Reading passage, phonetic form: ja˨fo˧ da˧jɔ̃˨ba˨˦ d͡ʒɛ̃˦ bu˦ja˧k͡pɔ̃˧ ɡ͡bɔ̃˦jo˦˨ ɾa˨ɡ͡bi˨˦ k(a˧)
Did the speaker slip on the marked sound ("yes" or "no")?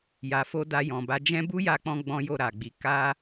yes